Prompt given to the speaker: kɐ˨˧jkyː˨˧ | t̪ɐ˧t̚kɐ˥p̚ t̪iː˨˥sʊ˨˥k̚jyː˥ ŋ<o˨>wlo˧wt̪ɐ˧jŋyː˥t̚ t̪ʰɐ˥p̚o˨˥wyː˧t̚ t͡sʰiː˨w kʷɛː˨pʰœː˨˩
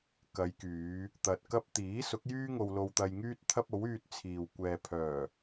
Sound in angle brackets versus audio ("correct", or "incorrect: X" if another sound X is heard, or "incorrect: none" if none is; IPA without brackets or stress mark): incorrect: o˧